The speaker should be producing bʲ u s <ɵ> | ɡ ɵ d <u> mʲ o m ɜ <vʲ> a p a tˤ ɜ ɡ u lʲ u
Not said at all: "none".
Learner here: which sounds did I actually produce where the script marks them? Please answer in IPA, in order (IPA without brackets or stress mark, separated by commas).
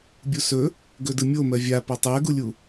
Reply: ɵ, ɯ, vʲ